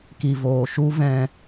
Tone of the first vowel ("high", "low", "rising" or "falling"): low